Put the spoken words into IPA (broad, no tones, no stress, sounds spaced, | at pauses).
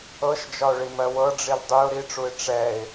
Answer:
ɤ ʃ d͡ʒ ɒ ʊ̯ ɭ i m ɜ w ɤ ɖ͡ʐ i l dˤ y ʊ̯ ɾ i ʈ͡ʂ u ɪ̯ ʈ͡ʂ ɛ ɪ̯